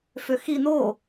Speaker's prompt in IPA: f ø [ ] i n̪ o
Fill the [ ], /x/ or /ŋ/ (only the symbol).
x